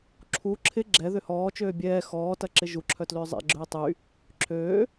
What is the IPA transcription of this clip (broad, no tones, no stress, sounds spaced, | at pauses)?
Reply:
ǁʰ u ǁʰ ɪ ɡ͡ǁ ɛ ð ʏ h ɔː t͡ʃ øː bʲ ɛː x ɔː t ɐ ǁ ɪ ʒ u ǁʰ œ t l ʏː zˤ ɛ̰ ɡ͡ǁ øː tˤ y | ǁʰ øː